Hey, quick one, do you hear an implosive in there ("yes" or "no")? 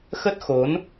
no